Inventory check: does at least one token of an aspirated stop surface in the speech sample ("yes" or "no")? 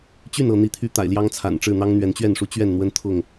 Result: yes